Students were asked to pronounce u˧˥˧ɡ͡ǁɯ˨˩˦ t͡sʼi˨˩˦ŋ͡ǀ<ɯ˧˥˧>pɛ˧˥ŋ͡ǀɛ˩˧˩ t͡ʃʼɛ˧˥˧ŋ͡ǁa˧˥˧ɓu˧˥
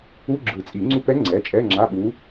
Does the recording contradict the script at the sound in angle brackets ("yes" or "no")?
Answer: yes